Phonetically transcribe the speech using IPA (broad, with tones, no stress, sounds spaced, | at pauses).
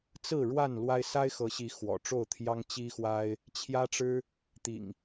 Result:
t͡s ɹ̩˥˨ ɻ w a˥˨ n l w a˦ ɪ̯ s a˦ ɪ̯ x ɤ˨˦ ɕ i˨˦ x w ɔ̰˨˩ ʈ͡ʂ o˥˨ ʊ̯ t̪ʰ j ɑ˦ ŋ t͡ɕ i˦ x w a˦ ɪ̯ | t͡ɕʰ j ä˦ ʈ͡ʂ ɻ̩˦ | t̪ ḭ˨˩ ŋ